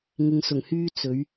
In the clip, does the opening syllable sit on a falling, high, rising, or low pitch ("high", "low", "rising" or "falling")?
low